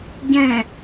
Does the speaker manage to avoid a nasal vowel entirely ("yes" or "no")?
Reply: no